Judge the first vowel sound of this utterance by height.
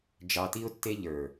low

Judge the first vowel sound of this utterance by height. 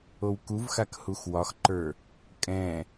mid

